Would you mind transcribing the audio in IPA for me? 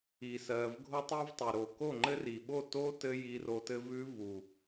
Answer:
i˨ s ɜ˨ v ɡʱ o˦ tˤ i˦ v tˤ ʉ˨ ɾ o˨ k o˦˨ ŋ͡ǃ ɘ˦ r i˨ ɓ o˦˨ t o˦ t ɘ˦ j i˧ r o˧ t ɘ˦ v ʉ˦ v u˨

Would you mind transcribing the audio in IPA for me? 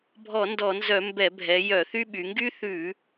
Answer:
bʱ ɔ˧˩˧ n d ɔ˧˩˧ n z œ˧˩˧ m b ɛ˧˩˧ bʱ ɛ˩˧ j œ˧˩˧ θ y˥ ɓ y˩˧ ŋ ɡ y˥ θ ʉ˧˩˧

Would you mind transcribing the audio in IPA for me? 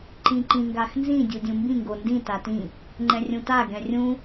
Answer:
ǃ ĩ ǃ ĩ ŋ ɡ a x n z ĩ dʲ u dʲ ũ m b ĩ ŋ ɡ o n d ĩ t a t ĩ | ŋ͡ǃ ɛ̃ rʲ ũ t a ɡ ɛ̃ rʲ ũ

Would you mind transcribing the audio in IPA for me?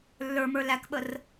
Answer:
lː ə˞ m ə˞ l æ k ɓ ə r

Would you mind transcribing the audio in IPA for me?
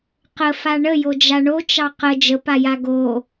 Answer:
q ə f a ɳ ə j o d͡ʒ a ɳ o t͡ʃ ɑ q ə d͡ʒ ə p a j a ɡ o

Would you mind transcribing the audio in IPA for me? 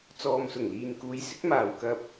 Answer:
t͡s ɔː˨ m s ʊ˨˩ ŋ l iː˨ n k uː˨˧ j s ɪ˨˥ k̚ m aː˨ w k ɐ˧ p̚

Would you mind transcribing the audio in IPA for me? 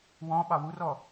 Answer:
w ɔ̃ ɓ ɑ w u r ɔ

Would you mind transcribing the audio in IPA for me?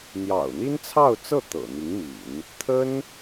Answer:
n̪ j ɑ̰˨˩ ʊ̯ n̪ i˥ n t͡sʰ ɑ˥˧ ʊ̯ t͡s ɤ˥˩ t̪ ɤ̰˨˩ n̪ i˧˥ ŋ m ḭ˨˩˦ n | t̪ʰ ə˥ n

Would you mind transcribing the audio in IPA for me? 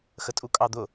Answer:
x ə tʼ u kʼ ɑ d̪ ʊ

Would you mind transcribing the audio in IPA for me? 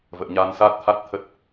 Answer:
v ə̰ː˧˨ ɲ aː˧ n s aː˦˥ t̚ t̪ʰ a˦˥ t̚ t̪ʰ ə˦˥ t̚

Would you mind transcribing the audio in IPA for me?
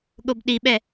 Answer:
ɠ o b ɗ i ɓ ɛ

